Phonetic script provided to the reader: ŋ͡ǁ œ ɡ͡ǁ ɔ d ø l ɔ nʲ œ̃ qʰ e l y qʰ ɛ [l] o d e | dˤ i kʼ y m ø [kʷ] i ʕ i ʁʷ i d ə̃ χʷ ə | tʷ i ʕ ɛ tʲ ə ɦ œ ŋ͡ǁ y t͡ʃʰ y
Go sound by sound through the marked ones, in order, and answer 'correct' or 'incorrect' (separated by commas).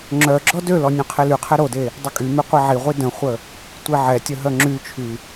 incorrect, incorrect